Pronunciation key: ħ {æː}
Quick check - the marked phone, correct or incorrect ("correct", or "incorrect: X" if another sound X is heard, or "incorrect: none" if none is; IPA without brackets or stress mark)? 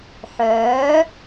incorrect: œː